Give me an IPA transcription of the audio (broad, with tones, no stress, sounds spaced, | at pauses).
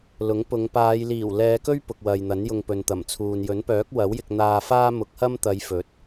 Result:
l ʊ˨˥ ŋ p ʊ˨˧ ŋ p aː˨˧ j l iː˨˩ w l ɛː˨˧ k ɵ˥ ɥ p ʊ˨ k̚ w ɐ˨ j n̪ ɐ˨˥ n j ʊ˧ ŋ p ɵ˨ n t̪ ɐ˨˩ m t͡sʰ uː˨ n j ɵ˨˥ n p œː˨˥ k̚ w ɐ˨˥ w j ɪ˧ k̚ n̪ aː˧ f aː˥ m ʊ˨˥ k̚ h ɐ˥ m t̪ ɐ˨˧ j f ɵ˨˥ t̚